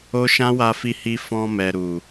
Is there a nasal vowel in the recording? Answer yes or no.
yes